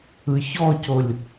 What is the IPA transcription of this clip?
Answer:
ɯ ç ɔ c o lʲ

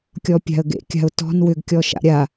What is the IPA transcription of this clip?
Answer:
kʲ ɔ pʲ a̤ ə̯ ɡ ḛ kʲ a̤ ʊ̯ t ɔ̤ n w ʏ ɡ kʲ ɔ ʃ a̰ ɾʲ a

